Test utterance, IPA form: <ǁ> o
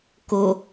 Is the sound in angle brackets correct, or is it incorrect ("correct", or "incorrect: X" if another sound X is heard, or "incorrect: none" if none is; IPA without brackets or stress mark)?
incorrect: k